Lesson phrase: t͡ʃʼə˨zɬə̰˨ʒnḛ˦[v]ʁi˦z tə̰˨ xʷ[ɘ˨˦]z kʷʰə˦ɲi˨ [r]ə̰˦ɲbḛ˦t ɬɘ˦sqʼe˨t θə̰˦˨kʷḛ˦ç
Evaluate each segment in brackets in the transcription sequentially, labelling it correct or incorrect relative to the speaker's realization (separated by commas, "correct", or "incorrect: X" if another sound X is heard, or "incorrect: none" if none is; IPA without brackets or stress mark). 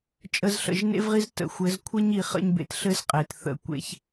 correct, correct, incorrect: χ